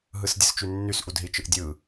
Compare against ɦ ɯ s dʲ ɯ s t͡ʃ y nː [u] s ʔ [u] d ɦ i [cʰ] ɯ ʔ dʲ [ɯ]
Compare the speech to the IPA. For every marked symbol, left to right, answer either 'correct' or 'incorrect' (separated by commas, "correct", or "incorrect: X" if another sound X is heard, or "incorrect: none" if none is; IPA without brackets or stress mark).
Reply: incorrect: y, correct, incorrect: t͡ʃ, correct